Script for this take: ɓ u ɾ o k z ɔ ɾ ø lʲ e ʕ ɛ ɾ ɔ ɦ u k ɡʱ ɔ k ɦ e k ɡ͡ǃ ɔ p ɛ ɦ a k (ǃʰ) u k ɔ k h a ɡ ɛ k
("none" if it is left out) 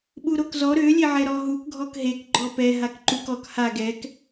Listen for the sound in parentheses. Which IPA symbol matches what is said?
ǃ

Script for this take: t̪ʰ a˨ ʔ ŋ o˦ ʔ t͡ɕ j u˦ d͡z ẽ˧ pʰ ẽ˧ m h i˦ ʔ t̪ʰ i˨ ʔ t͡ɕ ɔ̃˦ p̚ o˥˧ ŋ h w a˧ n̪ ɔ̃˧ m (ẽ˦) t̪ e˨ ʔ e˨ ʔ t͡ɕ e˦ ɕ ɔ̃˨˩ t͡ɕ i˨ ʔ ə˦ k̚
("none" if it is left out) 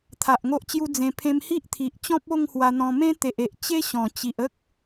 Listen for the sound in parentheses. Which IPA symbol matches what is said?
ẽ˦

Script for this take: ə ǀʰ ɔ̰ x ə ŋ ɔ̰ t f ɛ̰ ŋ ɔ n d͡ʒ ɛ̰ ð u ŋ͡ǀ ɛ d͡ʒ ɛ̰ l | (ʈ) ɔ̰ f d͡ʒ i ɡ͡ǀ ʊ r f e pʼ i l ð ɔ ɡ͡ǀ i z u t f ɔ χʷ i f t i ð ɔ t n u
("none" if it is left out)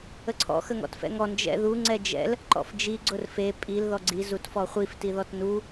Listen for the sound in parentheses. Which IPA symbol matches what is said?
ǃ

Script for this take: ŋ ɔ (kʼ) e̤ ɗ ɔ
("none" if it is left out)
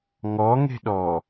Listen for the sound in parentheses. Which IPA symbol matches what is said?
ŋ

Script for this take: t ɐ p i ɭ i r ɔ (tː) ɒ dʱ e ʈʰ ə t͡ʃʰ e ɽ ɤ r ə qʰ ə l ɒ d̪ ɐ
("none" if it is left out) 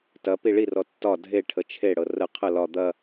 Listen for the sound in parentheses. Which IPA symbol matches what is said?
tː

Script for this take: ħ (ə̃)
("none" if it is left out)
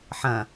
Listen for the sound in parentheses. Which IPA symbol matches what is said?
ɐ̃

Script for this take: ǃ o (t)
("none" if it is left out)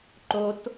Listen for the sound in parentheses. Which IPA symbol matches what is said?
t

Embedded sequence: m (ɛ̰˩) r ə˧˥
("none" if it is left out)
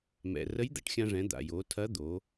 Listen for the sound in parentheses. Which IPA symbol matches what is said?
ɛ̰˩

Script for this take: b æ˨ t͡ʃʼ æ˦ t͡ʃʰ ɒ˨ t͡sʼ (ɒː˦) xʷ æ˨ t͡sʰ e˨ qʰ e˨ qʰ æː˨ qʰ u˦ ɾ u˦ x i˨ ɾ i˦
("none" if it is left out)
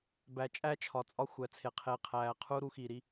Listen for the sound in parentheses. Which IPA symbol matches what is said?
ɒ˦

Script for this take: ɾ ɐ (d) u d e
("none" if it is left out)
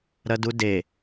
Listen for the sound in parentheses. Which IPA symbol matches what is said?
d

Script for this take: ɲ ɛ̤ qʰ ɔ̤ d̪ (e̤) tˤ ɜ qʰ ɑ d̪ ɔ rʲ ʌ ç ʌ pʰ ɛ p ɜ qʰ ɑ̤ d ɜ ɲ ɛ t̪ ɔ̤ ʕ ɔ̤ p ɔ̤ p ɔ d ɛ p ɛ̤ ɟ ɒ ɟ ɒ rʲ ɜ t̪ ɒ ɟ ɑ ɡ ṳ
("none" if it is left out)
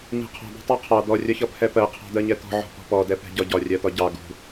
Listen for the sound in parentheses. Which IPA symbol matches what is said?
ɛ̤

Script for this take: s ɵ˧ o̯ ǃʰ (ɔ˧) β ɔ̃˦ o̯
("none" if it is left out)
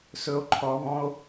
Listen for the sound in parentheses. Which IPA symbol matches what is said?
ɔ˧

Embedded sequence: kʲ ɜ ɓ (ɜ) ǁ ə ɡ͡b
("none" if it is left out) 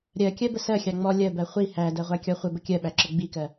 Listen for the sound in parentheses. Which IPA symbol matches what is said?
æ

